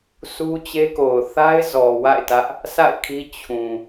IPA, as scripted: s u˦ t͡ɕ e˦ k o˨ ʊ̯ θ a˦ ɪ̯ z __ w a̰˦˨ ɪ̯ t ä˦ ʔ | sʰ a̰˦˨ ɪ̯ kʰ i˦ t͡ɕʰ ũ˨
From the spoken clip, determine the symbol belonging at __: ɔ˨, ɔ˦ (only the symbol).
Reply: ɔ˨